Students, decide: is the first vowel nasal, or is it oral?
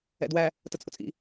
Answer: oral